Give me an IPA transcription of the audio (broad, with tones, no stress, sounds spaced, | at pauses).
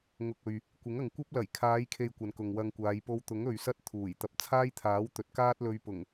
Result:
ŋ ʊ˨ k̚ ɵ˨ ɥ | kʷ ɪ˨˥ ŋ ɐ˨ ŋ kʷ ɐ˥ p̚ l ɐ˨˩ j kʰ aː˨˧ j kʰ e˨ j kʷ ɐ˨ n k ʊ˨ ŋ w ɐ˧ ŋ kʷ aː˨˧ j p o˧ w t̪ ʊ˨˥ ŋ ɵ˨ ɥ s ɐ˥ t̚ t̪ʰ uː˨˩ j t̪ ɐ˨ p̚ t͡sʰ aː˥ j t̪ʰ aː˨˥ w t̪ ɵ˨˥ t̚ k aː˥ t̚ l ɵ˧ ɥ p ʊ˨˩ ŋ